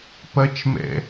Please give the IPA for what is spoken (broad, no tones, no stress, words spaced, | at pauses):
pɐt͡ʃmɛ̰